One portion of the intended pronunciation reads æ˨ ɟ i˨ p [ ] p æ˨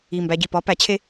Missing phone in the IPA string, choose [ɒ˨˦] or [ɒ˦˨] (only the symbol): ɒ˨˦